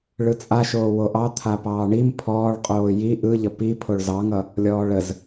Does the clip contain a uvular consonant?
yes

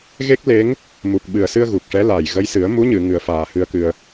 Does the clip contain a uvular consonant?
no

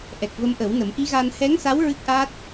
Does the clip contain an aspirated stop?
no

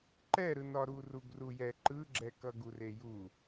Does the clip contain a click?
yes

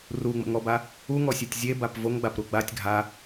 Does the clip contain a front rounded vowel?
no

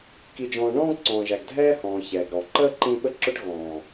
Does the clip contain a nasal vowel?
yes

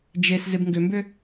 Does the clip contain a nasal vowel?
no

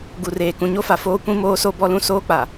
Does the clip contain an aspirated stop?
no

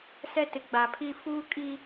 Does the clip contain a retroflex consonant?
no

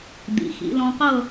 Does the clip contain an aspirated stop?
no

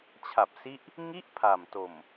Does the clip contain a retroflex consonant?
no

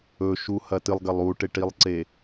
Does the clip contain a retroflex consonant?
yes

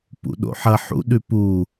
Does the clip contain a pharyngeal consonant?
yes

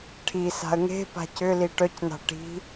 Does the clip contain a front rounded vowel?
yes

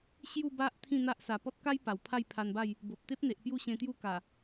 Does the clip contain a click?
no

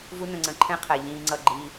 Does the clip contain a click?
yes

